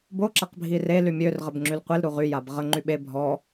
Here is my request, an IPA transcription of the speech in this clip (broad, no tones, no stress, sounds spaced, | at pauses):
b o ǁ a q bʱ i r e l y mʲ ø r ʁ ə b ŋ͡ǁ y l qʷ e l ɾ u ʁ y j a b ʁ ə ŋ͡ǃ y ɓ e bʱ ɔ